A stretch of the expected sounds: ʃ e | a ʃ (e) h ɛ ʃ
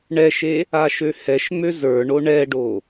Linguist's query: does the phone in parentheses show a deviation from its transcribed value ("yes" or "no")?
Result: yes